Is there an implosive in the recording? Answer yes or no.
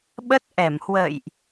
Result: yes